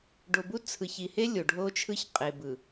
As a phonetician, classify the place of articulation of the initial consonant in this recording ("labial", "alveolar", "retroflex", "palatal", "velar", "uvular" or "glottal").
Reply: retroflex